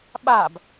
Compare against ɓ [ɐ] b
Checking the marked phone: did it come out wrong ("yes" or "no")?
yes